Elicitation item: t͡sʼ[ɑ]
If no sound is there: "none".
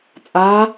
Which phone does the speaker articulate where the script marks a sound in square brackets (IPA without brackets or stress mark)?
a